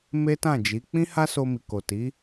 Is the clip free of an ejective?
yes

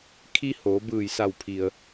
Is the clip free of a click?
yes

